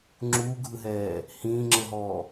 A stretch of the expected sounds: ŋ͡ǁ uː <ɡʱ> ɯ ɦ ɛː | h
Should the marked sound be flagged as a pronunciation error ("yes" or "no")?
no